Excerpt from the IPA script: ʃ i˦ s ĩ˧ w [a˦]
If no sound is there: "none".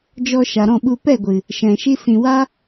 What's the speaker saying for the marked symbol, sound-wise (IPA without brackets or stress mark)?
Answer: a˦